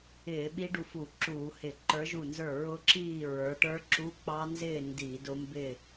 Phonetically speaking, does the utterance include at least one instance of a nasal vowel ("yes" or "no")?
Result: no